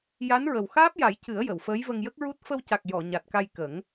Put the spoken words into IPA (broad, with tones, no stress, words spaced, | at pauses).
ja˧˥nɹə˨˩w xaː˦˥p̚ja˨˩˦jcɨ˨˩˦ə̯ jə˨˩˨wfəː˧˥jvə˧ŋ jə˦˥k̚ɹu˦˥t̚ fə˧wca˨˩k̚ jɔ˨˩˨ ɲa˨˩t̚ka˧j kə˨˩˦ŋ